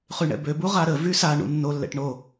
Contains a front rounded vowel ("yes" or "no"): yes